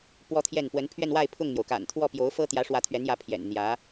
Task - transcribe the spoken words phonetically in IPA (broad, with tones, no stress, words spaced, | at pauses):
pwɔ˥t̪ʰjɛ˥˩n pwə˧˥npʰɥɛ˥˧nwa˥˧ɪ̯ pʰʊ˥˩ŋn̪jo˩ʊ̯ka̰˨˩n t̪ʰwɔ˥˩pjo˧˥ʊ̯fɤ˥ t̪jä˧˥ʂwä˧˥t̪ʰɥɛ˧˥njä˧˥ pʰjɛ̰˨˩n n̪jä˧˥